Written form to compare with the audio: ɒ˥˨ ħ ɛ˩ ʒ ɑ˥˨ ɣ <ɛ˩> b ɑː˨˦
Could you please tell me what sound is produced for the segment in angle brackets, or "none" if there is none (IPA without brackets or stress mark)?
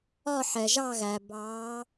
æ˩